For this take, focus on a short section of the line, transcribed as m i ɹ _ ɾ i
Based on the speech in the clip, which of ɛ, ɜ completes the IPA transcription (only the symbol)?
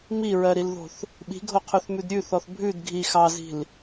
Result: ɜ